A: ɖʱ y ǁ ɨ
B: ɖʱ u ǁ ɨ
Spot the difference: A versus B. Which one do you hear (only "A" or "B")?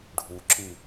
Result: B